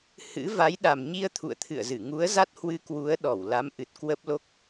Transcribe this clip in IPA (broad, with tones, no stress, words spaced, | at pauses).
hɨ̰˧˥ va˨˦jɗa˨˩m ɲi˧ə̯ t̪ʰṵ˧˨ə̯t̪ʰɨ̰˧˨ə̯zɨ˧˩ ŋu˨˦ə̯za˦˥t̚hwɨ˧ kwu˨˦ə̯ ɗɔ˧˩wla˨˦m ʔɨ˨˩t̚ kwə˦˥p̚lo˦˥k̚